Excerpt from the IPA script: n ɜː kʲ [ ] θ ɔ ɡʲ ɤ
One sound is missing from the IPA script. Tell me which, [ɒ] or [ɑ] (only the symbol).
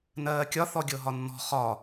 ɒ